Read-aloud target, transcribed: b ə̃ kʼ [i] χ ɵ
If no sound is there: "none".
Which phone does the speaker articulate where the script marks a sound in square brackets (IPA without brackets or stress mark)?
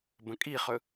i